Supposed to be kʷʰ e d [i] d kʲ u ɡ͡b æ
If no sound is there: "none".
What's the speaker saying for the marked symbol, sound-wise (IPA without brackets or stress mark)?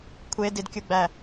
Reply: i